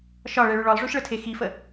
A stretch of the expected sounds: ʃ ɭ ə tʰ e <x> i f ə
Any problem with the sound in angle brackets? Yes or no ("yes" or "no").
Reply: no